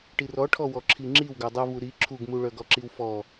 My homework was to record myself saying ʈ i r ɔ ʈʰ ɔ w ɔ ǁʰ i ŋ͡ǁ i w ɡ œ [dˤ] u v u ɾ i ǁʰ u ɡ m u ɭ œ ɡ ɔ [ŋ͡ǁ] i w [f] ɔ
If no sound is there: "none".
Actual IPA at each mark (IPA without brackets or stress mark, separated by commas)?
dˤ, ǁ, f